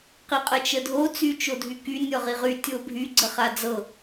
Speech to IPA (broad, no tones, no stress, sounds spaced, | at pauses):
q i qʼ ə t͡ʃ ə dʱ o t͡s y t͡ʃ o dʱ y k y nʲ ɔ ʁ i ʁ y tʲ o bʱ y ɡ͡ǀ ə χ a d͡z ɤ